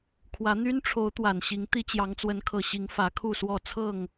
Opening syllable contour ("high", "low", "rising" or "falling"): rising